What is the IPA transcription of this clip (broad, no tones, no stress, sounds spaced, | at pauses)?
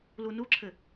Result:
l u n u ǁʰ ɘ